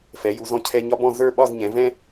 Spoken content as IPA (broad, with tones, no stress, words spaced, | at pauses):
fɛ˩˧ju˩˧zɔ̃˧ cʰɛ˧ɲɒ˥bɔ̃˥˧ zə˞˥˧ ɓɒ˥˧zɲɛ̃˩˧ vɛ̃˥